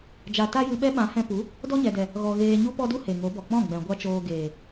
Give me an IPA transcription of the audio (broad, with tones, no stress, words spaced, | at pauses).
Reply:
d͡ʒa˧ ta˦jɨ˧ɓɛ˦ɓã˨˦ hɛ̃˧pu˨˦ | dɔ˦ɲɛ˨dɛ˨ | ɣɔ˨ ɣeː˧ ɲu˦pɔ˦du˦ he˨ŋo˨˦bɔ˨ k͡pɔ̃˦˨ɡ͡bɛ̃˨ ɡʷa˦t͡ʃoː˧ɡeː˨